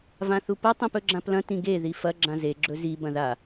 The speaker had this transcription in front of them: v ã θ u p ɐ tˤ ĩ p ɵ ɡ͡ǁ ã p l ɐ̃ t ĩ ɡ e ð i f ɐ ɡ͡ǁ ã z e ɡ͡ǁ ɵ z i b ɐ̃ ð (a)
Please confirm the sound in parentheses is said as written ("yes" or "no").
yes